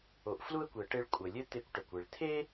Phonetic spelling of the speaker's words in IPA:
o˩ ʔ f l u˥ ə̯ kʷ ɪ˩ ə̯ ʈ e˧ ɭ kʷʼ ə˩ lʲ ɘ˥ t̪ e˧ kʷ ʈ ə˩ kʷ ɪ˩ ɭ t̪ʰ e˥

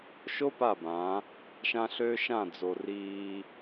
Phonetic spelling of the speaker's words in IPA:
ʃ o˦ p a˦˨ b ãː˨˦ | ʃ ã˦ ɬ ø˦ ʃ ã˦˨ d͡z o˨ r iː˦

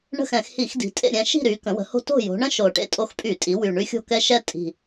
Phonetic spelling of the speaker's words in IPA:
ɳ ə̤˦˨ x ɛ̃˧˩˧ x h i˧˩˧ x d i̤˩˧ tʼ ḛ˦˨ ɾʲ ɛ̃˦˨ ʃ i̤˦˨ ɾ y˩˧ k ə̃˩˧ w ə̤˩˧ h o̤˦ t o̤˦˨ j o̤˩˧ ɳ ə̃˦ ʃ o˨˩ ʈ ḛ˦˨ tʼ o˦ x pʼ y˧˩˧ tʼ i˩˧ w y˨˩ ɳ y˦ xʲ o̤˦˨ k ɛ˦ ʃ ɛ˦ tʼ i̤˨˩

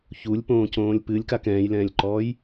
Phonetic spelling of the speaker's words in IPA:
ç u lʲ p õː c õː lʲ p ɨ lʲ k a k ɛ̃ː j l ɛ̃ː lʲ ǃ ɔː j

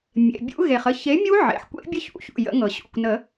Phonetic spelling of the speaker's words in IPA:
mʲ ḛ˩˧˩ bʲ ṵ˦˥ ɣ e˩ χ ə˦˨ ç e˨˥ mʲ u˦˥ ʕ ḛ˩˧˩ ħ kʷ ḛ˦˥ bʲ ə˦˥ ç ṵ˨˩˦ ç ṵ˩˧˩ j ə̰˨˩˦ ŋ ɤ˩ ɕ ṵ˩˧˩ kʷ n ə˨˩˦

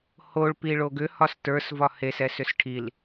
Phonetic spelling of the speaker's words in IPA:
h o ɭ p i ɭ o ɡ ʏ h ɒ s t ə˞ s v ɒ h e s ɛ s ʏ s ʈʰ i l

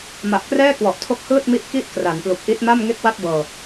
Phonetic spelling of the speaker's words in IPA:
m a˨˩ ʔ k r ɛː˥˩ k w ɔ˨˩ ʔ tʰ o˦˥ k̚ h ɯː˥˩ t̚ m i˦˥ ʔ k i˦˥ ʔ k r a˩˦ n p l u˨˩ k̚ ʔ i˦˥ t̚ m a˥˩ m ŋ e˥˩ k̚ w a˥˩ t̚ b ɤː˧

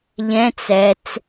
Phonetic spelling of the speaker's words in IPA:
ʎ ɛ̃ t͡s ɛ t͡s

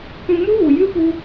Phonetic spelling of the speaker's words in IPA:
kʷ ĩ˧ m u˦ ɣ u˨ j ɨ˦ p u˦

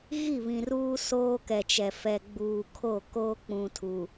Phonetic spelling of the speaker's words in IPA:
ɣ i˦˨ β ĩ˨ r uː˦ s oː˦ k ɛ˨ t͡ʃ ɛ˨ f ɛ˨ ɡ͡b uː˨ kʰ o˦˨ k oː˦ k͡p ũ˨ tʰ u˨

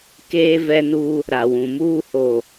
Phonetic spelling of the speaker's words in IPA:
k eː˦ v ɛ˦ n u˦ | ɾ a˨ w ũ˨ m uː˦ h o˨

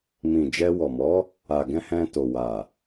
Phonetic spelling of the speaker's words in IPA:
m ĩ˨ d͡ʒ ɛ˧ w ɔ˨ m ɔ˨˦ | a˨ ɡ ɛ̃˧ h ɛ̃˧ t o˨ w a˨

